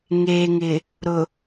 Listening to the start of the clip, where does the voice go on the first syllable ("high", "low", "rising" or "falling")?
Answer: low